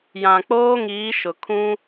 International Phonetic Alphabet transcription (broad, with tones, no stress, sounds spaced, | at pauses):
j ã˨ k͡p oː˦ ŋ iː˨˦ ʃ ʊ˨ kʰ ũ˦